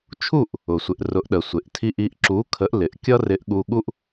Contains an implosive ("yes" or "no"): yes